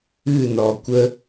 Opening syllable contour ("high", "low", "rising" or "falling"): falling